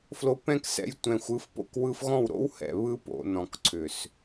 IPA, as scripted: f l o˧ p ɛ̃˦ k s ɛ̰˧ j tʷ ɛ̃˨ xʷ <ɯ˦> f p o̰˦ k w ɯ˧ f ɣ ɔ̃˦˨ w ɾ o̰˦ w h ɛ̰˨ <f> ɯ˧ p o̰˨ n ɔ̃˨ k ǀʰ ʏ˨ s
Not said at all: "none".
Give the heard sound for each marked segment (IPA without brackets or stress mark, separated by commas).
ɯ˨˦, β